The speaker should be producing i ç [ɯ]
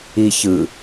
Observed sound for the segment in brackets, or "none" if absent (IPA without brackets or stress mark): ɯ